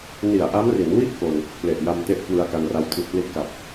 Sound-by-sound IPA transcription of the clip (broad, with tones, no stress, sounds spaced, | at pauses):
n i˨˩ a̯ ʔ a˦˥ m r i˩˦ n w i˥˩ ʔ k o˧ n | p l e˨˩ ʔ j a˧ m t e˦˥ ʔ k w ɯ˧ a̯ k a˧ n r a˦˥ w tʰ i˨˩ t̚ p l i˦˥ t̚ k a˨˩ p̚